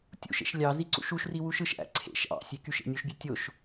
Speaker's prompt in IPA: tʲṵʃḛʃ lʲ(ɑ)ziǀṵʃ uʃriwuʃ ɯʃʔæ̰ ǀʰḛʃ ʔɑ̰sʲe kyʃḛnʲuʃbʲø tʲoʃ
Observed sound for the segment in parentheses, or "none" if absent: ɑ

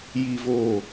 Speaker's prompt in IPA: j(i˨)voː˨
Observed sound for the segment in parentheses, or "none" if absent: i˨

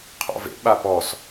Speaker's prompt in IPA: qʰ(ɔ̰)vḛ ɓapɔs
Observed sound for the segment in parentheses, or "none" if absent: ɔ̰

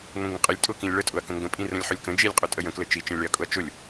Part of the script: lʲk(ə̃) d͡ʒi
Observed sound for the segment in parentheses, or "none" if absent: ə̃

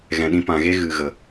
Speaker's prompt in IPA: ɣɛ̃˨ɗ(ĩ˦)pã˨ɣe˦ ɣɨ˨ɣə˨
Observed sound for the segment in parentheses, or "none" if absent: ĩ˧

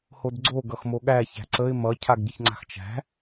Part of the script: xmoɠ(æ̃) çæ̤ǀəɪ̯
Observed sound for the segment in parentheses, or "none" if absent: æ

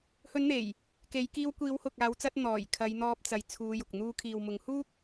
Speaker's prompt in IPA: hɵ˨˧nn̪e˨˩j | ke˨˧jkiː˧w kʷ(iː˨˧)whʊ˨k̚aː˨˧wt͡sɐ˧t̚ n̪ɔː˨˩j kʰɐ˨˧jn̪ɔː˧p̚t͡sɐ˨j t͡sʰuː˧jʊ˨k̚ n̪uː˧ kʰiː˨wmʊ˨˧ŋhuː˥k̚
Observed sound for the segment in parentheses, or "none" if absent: iː˨˧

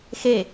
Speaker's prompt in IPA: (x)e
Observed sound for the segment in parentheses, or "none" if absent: x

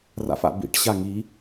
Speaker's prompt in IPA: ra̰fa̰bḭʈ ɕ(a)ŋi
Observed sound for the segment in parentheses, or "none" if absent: a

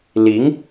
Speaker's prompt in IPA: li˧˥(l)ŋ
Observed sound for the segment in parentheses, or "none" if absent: none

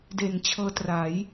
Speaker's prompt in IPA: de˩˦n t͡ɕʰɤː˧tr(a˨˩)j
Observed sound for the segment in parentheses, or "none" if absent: a˩˦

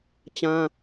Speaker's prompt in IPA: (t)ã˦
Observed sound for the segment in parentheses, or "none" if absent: t͡ɕ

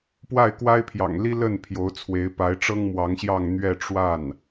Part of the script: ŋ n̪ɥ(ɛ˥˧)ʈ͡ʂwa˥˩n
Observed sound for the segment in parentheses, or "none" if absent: ɛ˥˧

